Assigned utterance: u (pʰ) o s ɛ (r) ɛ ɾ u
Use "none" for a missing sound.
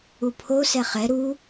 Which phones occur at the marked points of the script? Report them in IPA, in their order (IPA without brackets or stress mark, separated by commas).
pʰ, χ